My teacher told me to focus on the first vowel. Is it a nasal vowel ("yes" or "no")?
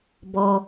no